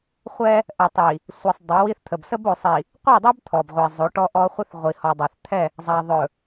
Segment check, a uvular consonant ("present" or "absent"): present